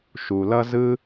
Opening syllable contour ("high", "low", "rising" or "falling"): low